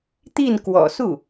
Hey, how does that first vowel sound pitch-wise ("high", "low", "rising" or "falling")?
falling